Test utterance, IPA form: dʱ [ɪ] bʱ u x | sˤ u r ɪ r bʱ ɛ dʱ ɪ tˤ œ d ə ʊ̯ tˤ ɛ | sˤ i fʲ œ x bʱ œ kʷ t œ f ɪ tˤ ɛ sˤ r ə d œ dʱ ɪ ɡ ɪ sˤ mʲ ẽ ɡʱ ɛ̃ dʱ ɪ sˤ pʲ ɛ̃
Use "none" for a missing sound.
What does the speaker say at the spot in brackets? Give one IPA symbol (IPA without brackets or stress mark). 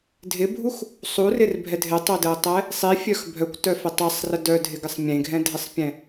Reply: ɪ